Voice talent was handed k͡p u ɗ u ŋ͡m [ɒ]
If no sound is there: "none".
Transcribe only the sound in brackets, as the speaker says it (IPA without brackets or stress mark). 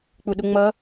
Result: ʌ